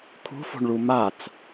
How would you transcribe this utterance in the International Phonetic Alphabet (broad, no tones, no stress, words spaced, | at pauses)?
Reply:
kʰṳfo̤ɳɭu mat͡s